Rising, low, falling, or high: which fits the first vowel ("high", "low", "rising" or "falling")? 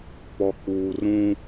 low